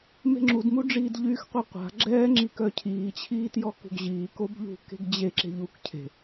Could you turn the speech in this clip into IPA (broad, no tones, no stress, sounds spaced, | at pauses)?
m e̤ ŋ͡ǁ u d m u ɖ͡ʐ iː d ʎ yː x qʷ ɛ qʷ a̤ ɡ͡ǁ ɛː ŋ͡ǁ i k œ cʰ iː t͡ɕʰ iː t j ɔ k ṳ ɡ ʑ iː k o b ʎ ṳ k e̤ ɡ d͡ʑ e ǁ e̤ ʎ u k cʰ e̤